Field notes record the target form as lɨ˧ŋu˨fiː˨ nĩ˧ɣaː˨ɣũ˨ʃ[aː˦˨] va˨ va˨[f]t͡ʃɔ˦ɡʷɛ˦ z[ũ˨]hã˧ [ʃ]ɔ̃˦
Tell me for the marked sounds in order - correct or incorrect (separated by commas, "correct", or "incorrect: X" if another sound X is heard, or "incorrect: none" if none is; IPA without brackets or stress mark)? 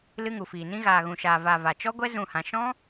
incorrect: aː˨, incorrect: none, incorrect: ũ˦˨, correct